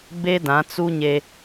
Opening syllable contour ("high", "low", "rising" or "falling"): high